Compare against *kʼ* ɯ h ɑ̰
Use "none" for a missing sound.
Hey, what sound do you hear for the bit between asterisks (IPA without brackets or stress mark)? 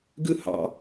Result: ɡ